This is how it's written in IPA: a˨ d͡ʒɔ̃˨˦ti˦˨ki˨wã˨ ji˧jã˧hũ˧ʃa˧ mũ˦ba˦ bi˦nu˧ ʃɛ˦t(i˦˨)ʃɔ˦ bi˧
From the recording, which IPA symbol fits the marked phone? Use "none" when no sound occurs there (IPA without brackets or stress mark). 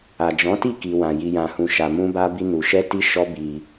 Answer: i˦